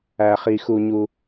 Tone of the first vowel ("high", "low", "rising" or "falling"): low